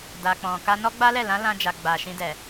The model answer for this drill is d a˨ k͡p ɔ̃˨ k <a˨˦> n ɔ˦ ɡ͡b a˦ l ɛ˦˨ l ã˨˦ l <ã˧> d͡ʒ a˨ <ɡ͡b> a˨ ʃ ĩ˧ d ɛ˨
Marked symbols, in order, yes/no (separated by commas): no, yes, yes